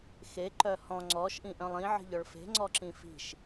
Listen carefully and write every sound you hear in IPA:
xeǃœ hɔ̃ ŋ͡ǀɔʃʔĩ ʔœ̃lˠĩʕi̤ʎɔɭ fe̤ŋ͡ǀɔǁĩ fi̤ʃ

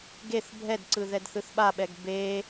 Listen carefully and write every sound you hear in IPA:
ɡeθ bʱɛdǀɯ ðɛdθɯθɓaɓɛɡ be

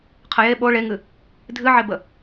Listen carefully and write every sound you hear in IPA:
qʰəje ɓo ɭeŋɨ | dʱɨʕebə

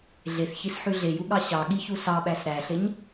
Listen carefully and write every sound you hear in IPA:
ɮeθçisħʉ ɮejuɠɑ ɕɑɠiçu sɑɓæs ɾæɬeɲ

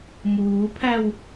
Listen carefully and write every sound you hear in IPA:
muːpʰæw

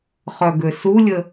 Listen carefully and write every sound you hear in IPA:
χœɡøsulʲə

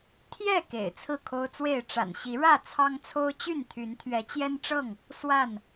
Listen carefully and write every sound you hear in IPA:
t̪ʰjɛ˥˨ kḛ˨˩ɪ̯t͡sʰɹ̩˥˨kʰo˦ʊ̯t͡swe˥˨ɪ̯ ʈ͡ʂa̰˨˩nɕi˨˦ɻä˥˨ t͡sʰɑ˦ŋt͡sʰo˦ʊ̯t͡ɕy˥˨nt̪ʰy˨˦n t̪ʰɥɛ˨˦t͡ɕjɛ˦nʈ͡ʂɤ˥˨ŋ | swa˥˨n

